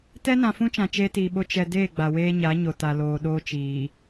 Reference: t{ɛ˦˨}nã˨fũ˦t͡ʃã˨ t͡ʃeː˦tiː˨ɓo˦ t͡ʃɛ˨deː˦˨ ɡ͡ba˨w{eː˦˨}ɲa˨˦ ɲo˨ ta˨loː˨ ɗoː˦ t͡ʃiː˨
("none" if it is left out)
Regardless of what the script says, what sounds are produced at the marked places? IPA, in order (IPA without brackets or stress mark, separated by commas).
ɛ˦, eː˦